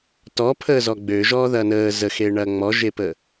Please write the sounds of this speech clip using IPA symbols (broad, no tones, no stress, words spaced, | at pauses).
tɔ pʰəːzɔɡ͡bøʒɔː ðɐːnəː zəxe ɳɐːŋ͡mɔʒepə